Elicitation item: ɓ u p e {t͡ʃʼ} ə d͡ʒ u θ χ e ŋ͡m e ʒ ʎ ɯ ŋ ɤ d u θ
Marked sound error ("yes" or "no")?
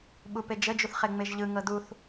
yes